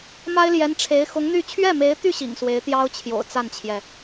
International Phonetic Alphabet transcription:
m a˥ ɪ̯ l j ɛ˧˥ n ʈ͡ʂʰ e˧˥ ɪ̯ x ʊ˧˥ ŋ n̪ y˥˧ t͡ɕʰ ɥ ɛ˥˩ m e˧˥ ɪ̯ t̪ y˥˩ ɕ ḭ˨˩ ŋ s w e˧˥ ɪ̯ t̪ j ɑ˥ ʊ̯ t͡ɕʰ j o̰˨˩ ʊ̯ t͡s a˥˩ n t͡ɕʰ j ɛ˩

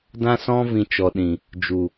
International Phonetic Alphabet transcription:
d ã˦ s ɔ̃˦ v ĩ˧ t͡ʃ ɔ˨ ɗ ĩ˨ | d͡ʒ u˨

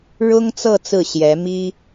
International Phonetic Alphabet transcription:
ɻ ʊ˥ ŋ t͡s ɤ˥˧ t͡s ɹ̩˥˩ ɕ j ɛ˧˥ m i˥

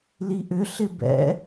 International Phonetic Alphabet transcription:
l i ʔ ʏ ɬ ɪ b ɛ̰

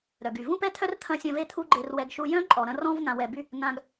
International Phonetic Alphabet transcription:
ɾ œ˨ ɡ y˨ v ũ˦ p ɛ˦ t̪ʰ œ˦ r t̪ʰ ɐ̃˧ sʲ ɐ̃˧ v e˧ t̪ʰ u˦ ɡ͡ǃ e˧ r w ɛ˧ ɡ ʃ u˧ j œ̃˦ ǃʼ ɔ˨ ɾ ɐ̃˧ r ɔ̃˧ v ŋ ã˨ w ɛ˨ b y˧ | ŋ ã˧ ɡ

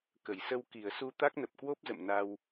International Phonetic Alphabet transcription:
k ə˧˩ j s ə˧ w k i˧˩ ə̯ s u˧ t̪ a˦˥ k̚ n ə˨˩ p̚ k w o˦˥ p̚ z ə̰˧˨ m n a˧ w

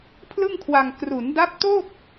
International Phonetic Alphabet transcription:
pʰ l ɯ˥˩ ŋ kʰ w a˧ ŋ k r u˩˦ n d a˦˥ p̚ t o˥˩ k̚

